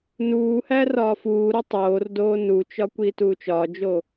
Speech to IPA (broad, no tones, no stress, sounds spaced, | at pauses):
n uː h æ r ɒː f uː ɾ o tˤ oː r d oː n u t͡ʃ ɒ kʷ iː t uː t͡ʃ ɒː d͡ʒ o